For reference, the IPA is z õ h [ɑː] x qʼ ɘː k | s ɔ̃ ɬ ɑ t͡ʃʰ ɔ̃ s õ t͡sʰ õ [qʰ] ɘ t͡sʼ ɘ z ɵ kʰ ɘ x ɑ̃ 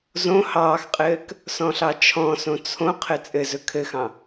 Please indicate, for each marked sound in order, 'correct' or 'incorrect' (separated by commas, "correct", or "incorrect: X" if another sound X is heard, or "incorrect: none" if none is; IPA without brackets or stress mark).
correct, correct